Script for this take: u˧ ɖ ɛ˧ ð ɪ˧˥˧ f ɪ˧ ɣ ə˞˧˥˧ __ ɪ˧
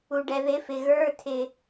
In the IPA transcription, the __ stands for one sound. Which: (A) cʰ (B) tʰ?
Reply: B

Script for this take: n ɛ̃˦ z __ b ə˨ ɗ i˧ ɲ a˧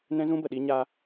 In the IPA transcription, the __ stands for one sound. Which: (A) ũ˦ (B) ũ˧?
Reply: A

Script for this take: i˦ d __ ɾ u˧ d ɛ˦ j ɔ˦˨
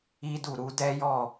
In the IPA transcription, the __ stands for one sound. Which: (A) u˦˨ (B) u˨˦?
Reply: A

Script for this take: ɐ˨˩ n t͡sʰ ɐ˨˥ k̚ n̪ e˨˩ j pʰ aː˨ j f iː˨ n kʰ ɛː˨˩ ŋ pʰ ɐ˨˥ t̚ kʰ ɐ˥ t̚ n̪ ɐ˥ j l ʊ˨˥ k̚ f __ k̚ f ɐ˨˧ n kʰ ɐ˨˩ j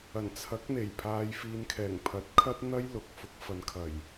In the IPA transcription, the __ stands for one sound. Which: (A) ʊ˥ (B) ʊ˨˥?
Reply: B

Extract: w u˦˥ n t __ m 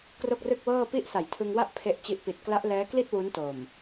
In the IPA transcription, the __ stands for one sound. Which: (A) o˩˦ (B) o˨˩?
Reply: B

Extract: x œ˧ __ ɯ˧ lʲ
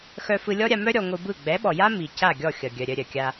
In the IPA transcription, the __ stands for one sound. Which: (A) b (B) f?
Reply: B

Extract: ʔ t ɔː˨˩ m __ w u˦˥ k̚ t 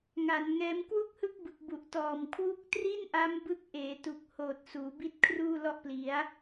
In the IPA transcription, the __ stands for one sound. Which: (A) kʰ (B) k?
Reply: A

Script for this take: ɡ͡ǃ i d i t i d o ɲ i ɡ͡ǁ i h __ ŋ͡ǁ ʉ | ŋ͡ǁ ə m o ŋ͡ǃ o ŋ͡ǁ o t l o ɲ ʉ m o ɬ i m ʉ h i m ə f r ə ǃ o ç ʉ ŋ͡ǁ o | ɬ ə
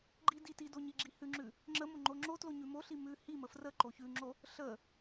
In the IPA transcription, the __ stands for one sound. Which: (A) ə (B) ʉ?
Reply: B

